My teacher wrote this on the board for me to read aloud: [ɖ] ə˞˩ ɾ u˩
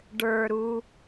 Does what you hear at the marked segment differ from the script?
no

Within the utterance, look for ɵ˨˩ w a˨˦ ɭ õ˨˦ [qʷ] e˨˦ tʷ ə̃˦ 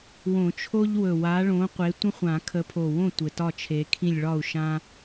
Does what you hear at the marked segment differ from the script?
no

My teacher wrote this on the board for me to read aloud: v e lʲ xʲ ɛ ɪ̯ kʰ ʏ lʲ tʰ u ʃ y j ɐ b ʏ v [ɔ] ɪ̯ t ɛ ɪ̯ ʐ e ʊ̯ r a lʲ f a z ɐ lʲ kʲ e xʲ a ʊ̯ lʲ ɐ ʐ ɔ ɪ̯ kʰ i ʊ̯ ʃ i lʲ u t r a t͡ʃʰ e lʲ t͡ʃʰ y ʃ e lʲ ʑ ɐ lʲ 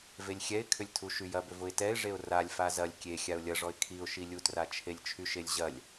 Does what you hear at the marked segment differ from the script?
yes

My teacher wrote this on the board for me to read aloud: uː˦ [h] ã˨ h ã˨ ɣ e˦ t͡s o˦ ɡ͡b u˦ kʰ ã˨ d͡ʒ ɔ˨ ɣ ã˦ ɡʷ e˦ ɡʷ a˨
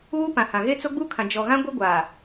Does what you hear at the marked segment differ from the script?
yes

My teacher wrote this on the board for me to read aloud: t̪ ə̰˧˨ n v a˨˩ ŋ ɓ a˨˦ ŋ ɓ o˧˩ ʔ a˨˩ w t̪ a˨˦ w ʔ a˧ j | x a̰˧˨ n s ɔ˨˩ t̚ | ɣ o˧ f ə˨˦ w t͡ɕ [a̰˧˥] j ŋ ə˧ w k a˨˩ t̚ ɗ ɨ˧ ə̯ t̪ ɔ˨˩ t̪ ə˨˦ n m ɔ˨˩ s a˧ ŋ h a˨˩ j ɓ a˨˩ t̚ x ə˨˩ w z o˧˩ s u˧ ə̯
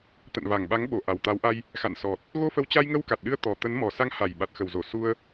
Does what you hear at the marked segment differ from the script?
yes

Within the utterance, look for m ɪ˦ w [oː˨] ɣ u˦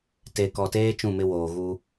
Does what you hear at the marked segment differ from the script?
no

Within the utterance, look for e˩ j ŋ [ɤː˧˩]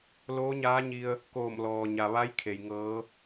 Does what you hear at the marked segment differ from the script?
yes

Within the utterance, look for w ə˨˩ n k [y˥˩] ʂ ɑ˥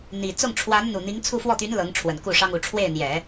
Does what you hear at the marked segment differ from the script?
yes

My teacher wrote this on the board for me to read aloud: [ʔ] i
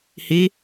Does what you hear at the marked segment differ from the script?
yes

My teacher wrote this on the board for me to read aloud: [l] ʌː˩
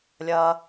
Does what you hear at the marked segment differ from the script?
yes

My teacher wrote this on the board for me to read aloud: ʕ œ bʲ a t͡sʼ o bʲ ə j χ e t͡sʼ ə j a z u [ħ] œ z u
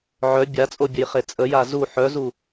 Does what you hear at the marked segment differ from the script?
no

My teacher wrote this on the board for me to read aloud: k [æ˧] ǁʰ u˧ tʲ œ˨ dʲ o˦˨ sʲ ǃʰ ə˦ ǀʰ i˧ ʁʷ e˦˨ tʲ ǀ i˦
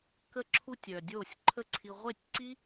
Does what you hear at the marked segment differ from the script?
yes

